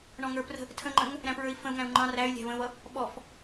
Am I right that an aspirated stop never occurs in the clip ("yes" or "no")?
no